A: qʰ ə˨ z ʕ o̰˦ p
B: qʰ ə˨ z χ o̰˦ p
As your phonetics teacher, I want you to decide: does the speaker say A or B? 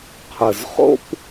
B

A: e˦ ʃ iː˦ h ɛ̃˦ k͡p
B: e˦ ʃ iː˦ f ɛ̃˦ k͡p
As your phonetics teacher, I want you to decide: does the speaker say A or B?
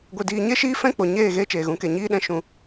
B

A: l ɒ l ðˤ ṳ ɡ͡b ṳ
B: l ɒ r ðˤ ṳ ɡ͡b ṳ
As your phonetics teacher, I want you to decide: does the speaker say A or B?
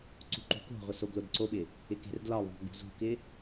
A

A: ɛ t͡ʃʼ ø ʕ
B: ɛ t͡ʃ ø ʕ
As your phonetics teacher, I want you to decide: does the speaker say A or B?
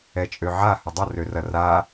A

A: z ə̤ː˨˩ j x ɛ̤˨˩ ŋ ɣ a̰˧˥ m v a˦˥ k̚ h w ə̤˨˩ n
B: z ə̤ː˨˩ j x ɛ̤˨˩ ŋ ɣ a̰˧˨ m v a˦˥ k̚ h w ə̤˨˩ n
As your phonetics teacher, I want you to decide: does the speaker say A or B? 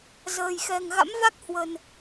A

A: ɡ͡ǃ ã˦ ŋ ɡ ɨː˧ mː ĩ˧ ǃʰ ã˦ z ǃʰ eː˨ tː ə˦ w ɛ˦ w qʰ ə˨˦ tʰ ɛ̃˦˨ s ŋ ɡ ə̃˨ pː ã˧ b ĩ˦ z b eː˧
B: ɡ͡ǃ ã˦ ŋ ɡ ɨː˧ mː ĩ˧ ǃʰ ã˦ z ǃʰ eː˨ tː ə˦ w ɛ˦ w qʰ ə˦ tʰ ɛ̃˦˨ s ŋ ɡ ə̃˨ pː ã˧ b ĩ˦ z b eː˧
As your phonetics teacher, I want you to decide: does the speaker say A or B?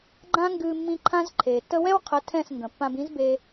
A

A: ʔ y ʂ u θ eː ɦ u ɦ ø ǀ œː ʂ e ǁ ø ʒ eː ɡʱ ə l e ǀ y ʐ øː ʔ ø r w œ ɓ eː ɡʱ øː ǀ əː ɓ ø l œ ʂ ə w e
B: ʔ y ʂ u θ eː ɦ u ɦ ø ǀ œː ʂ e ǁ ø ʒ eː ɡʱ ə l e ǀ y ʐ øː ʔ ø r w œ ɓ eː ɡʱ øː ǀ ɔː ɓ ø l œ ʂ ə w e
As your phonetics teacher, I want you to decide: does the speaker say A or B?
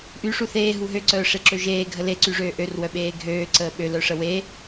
A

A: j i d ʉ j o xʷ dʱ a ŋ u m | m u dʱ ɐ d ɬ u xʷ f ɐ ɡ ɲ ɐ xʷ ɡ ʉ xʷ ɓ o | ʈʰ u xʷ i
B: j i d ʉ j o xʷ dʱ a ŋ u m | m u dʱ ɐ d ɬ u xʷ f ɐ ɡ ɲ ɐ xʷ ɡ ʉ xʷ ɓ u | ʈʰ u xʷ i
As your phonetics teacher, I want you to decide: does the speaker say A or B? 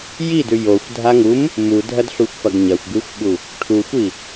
B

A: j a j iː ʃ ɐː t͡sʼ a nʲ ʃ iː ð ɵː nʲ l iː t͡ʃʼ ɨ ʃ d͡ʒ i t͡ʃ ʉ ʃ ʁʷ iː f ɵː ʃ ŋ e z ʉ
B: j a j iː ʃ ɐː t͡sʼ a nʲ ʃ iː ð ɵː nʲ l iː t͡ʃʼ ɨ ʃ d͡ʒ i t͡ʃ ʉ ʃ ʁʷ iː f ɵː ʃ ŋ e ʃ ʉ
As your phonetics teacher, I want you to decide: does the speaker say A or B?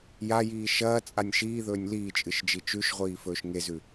A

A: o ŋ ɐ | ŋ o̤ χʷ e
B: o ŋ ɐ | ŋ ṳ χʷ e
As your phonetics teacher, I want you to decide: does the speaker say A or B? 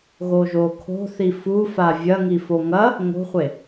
A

